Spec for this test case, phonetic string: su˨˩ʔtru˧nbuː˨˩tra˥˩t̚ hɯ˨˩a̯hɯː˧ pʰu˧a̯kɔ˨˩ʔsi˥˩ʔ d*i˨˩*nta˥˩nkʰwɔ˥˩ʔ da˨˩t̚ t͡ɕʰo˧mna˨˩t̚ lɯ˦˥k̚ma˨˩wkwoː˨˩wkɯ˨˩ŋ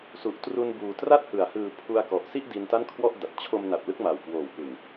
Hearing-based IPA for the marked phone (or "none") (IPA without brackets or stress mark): i˧